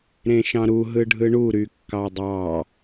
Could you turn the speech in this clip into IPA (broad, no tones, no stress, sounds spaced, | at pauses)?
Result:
ɾ ẽ ʃ ɑ̃ ɾ u ɦ ɯ ɖʱ ɯ ɳ u ɾ y kː ɑ dˤ ɑ